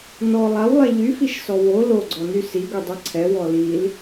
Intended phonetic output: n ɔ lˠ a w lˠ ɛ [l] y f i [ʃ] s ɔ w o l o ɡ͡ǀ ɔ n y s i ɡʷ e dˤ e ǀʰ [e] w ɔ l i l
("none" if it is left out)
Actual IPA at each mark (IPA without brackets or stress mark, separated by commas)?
ʎ, ʃ, ɛ